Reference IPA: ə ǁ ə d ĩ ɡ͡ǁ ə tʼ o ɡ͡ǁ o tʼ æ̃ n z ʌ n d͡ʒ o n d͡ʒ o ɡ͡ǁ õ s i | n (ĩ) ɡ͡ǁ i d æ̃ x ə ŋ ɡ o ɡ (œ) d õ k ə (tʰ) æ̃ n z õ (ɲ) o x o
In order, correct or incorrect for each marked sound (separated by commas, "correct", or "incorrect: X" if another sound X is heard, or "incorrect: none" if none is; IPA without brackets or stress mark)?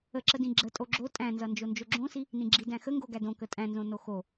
correct, incorrect: æ, incorrect: tʼ, incorrect: n